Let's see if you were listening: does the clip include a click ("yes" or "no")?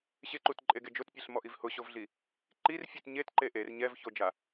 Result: yes